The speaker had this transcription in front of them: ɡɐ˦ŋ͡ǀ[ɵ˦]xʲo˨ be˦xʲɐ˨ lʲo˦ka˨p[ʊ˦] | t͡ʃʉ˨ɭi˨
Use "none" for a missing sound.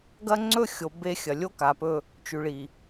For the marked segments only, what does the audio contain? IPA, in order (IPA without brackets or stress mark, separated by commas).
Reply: ɵ˦, ɵ˦